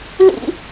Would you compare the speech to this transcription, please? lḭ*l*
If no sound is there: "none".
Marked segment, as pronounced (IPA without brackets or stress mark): none